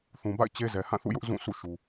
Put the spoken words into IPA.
θ ũ˨ b a̰˦˨ ɪ̯ t͡ɕ e˦ z ɛ˨ h ã˦˨ θ ṵ˦˨ j ʊ˦ ʔ z ũ˦˨ sʰ ṵ˦˨ ʃ u˨

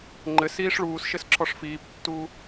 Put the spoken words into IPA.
ŋ͡ǃ ɘ s iː ʂ ɭ uː s ʃ ɘ s ǁʰ ɔ ʂ f iː p tː uː

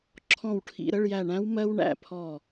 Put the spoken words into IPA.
ǁʰ ɔ̃˦˨ w ʈʰ ḭ˧˥˧ ɾ ə˧˥˧ ɭ j æ˦˨ ɳ æ̃˦˥ w m ɜ˦˥ w ɳ æ̰˧˥˧ pʰ ɔ˦˨

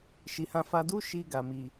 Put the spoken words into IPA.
ʃ i˨ h ã˧ f a˧ d u˦ ʃ i˧ ɡ a˨ m i˨

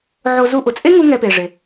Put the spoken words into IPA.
ʕ o˧ z u˧ ʔ ʊ˩ t͡sʼ e˥ ŋ u˥ ŋ ɛ˧ p e˩ ʐ e˩

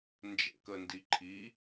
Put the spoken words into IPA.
n d͡ʒ ɛ̰ k ə n d i ǃʰ i

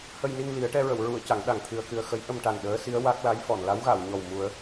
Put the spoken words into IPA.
h ə˧ j n i˧ ŋ l i˨˩˦ ə̯ ʈ ɛ˧ ɹ ə˨˩˨ w ɹ u˨˩˨ ə̯ c a˨˩˦ ŋ ɗ a˨˩ ŋ t̪ʰ ɨ˧ ə̯ k ɨ˧ ə̯ x ə˧˥ j ʔ ə˧ m ʈ a˨˩ n ɗ əː˧˥ s i˧˥ ə̯ w a˦˥ k̚ l a˧˥ j f ɔ˨˩˨ n l a˧˥ w ɣ a˨˩˨ w ɲ ɔ˨˩ w m u˨˩˦ ə̯

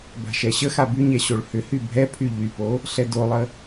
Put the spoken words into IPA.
b a̤ ʃ ɛ ɕ ə x a b y ɲ ɛ ɕ o ɭ h ʏ h y bʱ ɛ pʰ y ʎ y p o | ɬ ɛ d o lˠ ə

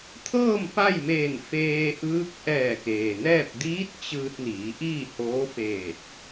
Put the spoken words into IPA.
t̪ʰ ɤː˥˨ m p a˥˨ j m eː˧˩ n f eː˧ ʔ ɯː˧˥ k̚ ʔ ɛː˧˩ k eː˩ n ɛː˥˨ p̚ d iː˧˥ t̚ t͡ɕ ɯː˧ t̚ n iː˩˧ ʔ iː˥˨ h oː˧˥ f eː˧˩ t̚

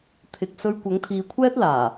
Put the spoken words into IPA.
t̪ʰ ɪ˨ k̚ s ɵ˧ ɥ kʷ ɐ˨˥ ŋ t̪ʰ iː˨˧ kʷʰ ɛː˥ t̚ l aː˨˩

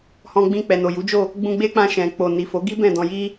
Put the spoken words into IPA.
h ɔ̃˧ ɡ͡b ĩ˧ k͡p ɛ˨ n o˨ j u˨˦ d͡ʒ o˦˨ | ɡ͡b ũ˧ ɡ͡b e˦ k͡p ã˧ ʃ ɛ̃˨ k͡p o˨ n i˨ f o˨˦ ɡ i˦ b ɛ̃˦˨ d ɔ̃˧ j i˦

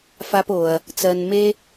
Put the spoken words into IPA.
f a˦ p o˧ ɐ̯ | t͡s ɜ˧ n m e˦

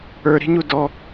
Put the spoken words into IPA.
ə˞ ɾ i̤ ɲ u d ɔ

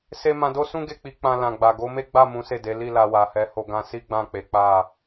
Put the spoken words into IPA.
s e˧ m ã˧ d o˦ s ũ˦ ɡ e˦˨ k͡p i˨˦ k͡p ã˧ l ã˨ ɡ͡b a˨ ɡ o˨˦ m e˦ ɡ͡b a˦˨ m ũ˨˦ s e˦˨ d e˨˦ l i˦˨ l a˧ w a˨ h ɛ˨˦ h o˧ ɡ ã˧ s i˦ ɡ͡b ã˦˨ k͡p e˨˦ k͡p a˦˨

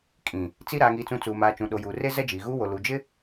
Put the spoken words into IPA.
kʼ ĩ˨ | t͡s i˦ ɾ aː˨ ŋ iː˨ t͡s ũ˨ t͡s uː˨ m aː˨ t͡ʃ ũ˨ ɗ o˨ j uː˨ r e˦ z ɛ˦ d͡ʒ iː˨ ɣ uː˦ w o˨ l u˨ d͡ʒ ɪ˦

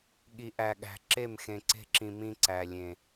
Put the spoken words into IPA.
ɠ i˨ ʔ æ˨ ɠ æ̤˨ ǁ e˦˨ m x ẽ˨ ǀ e̤˦ ǁ ĩ˨ m ĩ˦ ǀ æ˨ lʲ ẽ˨

